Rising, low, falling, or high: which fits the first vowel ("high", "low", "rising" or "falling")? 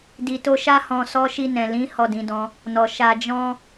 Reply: low